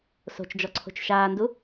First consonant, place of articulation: alveolar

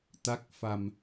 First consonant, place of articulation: alveolar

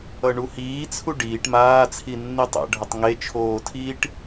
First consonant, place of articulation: retroflex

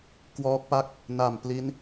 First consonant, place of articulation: velar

